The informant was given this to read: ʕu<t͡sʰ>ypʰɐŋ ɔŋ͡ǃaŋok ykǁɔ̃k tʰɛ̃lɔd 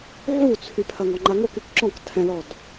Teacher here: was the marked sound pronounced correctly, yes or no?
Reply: yes